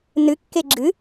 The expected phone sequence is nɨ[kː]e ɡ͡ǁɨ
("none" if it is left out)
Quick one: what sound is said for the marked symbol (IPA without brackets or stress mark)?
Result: kː